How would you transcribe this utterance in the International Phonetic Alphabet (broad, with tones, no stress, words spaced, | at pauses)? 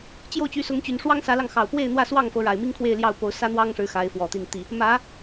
t͡ɕjo˥˨ʊ̯t͡ɕy˨˦sʊ˨˦ŋt͡ɕy˨˩n ʂwɑ˦ŋsä˨˦lɑ˧ŋxɑ˨˩ʊ̯ pwe˥˨ɪ̯n̪wä˥˨swɑ˥˨ŋfɤ˨˦ ɻa˨˩ɪ̯mi˦ŋkʰwe˥˨ɪ̯ ljɑ˥˨ʊ̯ po˨˦ʊ̯sä˦n̪wɑ˦ŋʂɻ̩˨˦ xa˨˦ɪ̯fwɔ˨˩t̪i˥˨nt̪i˥˨ | mä˨˦